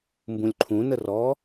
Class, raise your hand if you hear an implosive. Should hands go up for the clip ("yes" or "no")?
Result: no